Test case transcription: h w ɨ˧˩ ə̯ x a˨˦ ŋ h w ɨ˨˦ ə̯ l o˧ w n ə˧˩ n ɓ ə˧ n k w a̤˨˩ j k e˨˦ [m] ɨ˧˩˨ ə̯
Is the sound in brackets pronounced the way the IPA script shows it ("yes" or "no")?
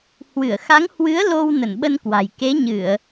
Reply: no